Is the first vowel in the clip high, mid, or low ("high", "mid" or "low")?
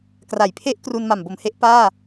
low